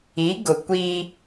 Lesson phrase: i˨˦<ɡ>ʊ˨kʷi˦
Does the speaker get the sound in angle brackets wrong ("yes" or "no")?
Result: no